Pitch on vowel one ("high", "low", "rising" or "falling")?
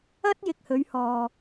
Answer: high